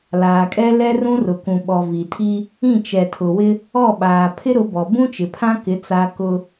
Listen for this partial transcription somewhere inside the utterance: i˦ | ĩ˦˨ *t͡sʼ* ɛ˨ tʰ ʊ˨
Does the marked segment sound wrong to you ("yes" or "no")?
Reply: yes